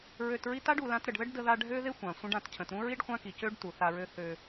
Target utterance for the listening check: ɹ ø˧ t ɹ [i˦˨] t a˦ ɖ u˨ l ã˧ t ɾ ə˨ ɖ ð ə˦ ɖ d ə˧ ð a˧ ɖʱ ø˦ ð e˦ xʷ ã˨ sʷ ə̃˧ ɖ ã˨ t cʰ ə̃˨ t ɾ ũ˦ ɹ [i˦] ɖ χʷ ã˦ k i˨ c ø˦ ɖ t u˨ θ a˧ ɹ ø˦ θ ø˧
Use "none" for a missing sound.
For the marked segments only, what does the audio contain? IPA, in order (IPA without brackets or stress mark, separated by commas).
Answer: i˦, i˦